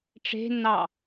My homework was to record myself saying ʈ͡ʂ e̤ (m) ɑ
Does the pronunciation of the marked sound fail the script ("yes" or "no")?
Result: yes